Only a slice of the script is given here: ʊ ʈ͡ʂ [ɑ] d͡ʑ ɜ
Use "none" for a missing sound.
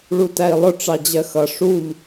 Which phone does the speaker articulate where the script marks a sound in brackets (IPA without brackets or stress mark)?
ɑ